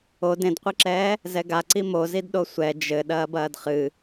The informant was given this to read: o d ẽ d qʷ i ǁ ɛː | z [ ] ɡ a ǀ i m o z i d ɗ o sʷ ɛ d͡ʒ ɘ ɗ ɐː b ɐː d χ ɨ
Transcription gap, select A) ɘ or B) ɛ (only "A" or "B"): B